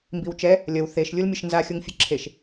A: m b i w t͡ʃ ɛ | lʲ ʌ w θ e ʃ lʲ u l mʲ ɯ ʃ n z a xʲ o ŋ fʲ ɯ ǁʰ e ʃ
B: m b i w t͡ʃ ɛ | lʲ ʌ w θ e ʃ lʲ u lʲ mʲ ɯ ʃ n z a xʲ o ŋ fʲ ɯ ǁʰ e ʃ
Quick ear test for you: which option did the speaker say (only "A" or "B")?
A